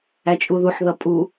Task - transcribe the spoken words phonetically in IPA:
æt͡ʃʼuðuħ ðʌpʼu

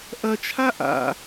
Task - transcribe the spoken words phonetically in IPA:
ʔɐt͡ʃʰa ʔa̰

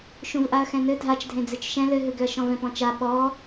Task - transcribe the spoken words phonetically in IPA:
ʃũvʔaɐ̯xɛ̃nɘ dʱat͡ʃdʱẽ d͡zɨt͡ʃʃɛ̃ lɘɦɨɡʏɐ̯ ʃɔ̃vɛ̃pɔ̃t͡ʃa ɓɔ

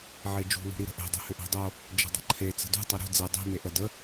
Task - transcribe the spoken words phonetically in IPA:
ʕed͡ʒṳ lṳɾiɾə̤ʔe̤ dˤi̤hʏʔe̤dˤo | d͡ʒə̤dˤə̤ǃʰe t͡sə̤dṳ tˤeɾṳ d͡ze dˤi̤ meʔə də

